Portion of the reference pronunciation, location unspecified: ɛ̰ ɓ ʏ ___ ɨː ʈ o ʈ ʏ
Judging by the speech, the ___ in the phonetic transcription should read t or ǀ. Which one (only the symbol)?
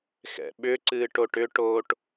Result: ǀ